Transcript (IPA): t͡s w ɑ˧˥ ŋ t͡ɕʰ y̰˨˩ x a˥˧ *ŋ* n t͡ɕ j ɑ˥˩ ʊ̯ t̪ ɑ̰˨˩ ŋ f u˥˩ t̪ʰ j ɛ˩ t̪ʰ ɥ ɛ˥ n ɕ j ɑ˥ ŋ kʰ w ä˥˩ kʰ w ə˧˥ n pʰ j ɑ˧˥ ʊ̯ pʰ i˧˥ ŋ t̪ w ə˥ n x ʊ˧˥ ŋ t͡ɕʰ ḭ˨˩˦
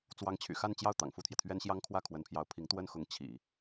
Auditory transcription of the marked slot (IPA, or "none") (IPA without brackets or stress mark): none